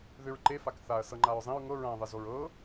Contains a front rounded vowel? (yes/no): yes